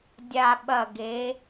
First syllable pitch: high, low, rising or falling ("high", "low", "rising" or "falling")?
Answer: low